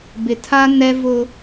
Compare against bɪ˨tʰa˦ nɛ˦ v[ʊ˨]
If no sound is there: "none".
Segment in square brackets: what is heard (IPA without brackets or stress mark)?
ʊ˦